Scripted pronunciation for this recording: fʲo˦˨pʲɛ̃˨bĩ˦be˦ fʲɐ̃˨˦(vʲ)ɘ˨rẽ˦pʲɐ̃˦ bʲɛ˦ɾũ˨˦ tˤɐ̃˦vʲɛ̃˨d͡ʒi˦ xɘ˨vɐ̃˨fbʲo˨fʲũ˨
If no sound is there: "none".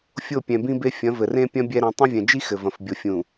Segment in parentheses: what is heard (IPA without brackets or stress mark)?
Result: v